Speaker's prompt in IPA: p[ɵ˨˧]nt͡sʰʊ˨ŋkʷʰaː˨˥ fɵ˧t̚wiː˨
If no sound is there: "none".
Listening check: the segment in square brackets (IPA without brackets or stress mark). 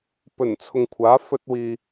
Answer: ɵ˨˩